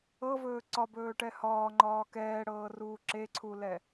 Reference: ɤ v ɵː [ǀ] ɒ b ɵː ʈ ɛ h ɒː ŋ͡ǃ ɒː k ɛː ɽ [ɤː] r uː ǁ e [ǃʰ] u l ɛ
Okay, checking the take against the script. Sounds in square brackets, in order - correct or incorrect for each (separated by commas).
correct, correct, incorrect